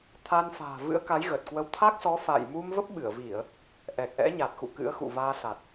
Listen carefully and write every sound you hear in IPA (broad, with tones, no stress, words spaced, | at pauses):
t̪ʰaː˧nfa̤ː˨˩ vɨ̰˧˥ə̯ka˨˦jɣə˨˩t̚kwə˧w t̪ʰa˦˥k̚sɔ˨˦fa̰ː˧˨jmu˧m və˦˥p̚ɓɨ˧˩ə̯vi˧˩˨ə̯ | ʔɛ˨˩k̚ʔɛ̰˧˥ɲa˨˩t̚xṵ˧˨ kɨ̰˧˥ə̯xṵ˧˨vaː˧sa˨˩t̚